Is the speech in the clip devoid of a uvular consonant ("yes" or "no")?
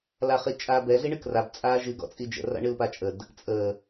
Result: no